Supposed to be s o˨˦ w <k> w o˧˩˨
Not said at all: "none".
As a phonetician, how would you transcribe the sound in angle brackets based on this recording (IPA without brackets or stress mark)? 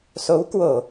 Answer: k